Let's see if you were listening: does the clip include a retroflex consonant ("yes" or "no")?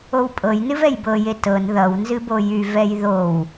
no